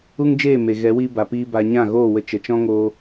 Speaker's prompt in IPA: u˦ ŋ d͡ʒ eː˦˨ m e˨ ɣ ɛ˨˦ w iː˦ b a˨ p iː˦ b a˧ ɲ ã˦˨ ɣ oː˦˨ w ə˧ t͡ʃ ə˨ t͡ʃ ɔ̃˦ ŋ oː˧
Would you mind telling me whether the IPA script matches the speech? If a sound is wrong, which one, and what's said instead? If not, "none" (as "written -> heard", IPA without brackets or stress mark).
none